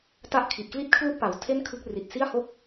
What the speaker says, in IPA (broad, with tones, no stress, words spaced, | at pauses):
ta˥˩ʔ kʰi˨˩ʔkli˥˩t̚kʰlu˥˩ʔpa˨˩w tʰe˥˩nkʰɯ˦˥k̚ ri˨˩t̚si˥˩a̯ho˥˩k̚